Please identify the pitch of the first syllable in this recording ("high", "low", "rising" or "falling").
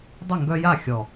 falling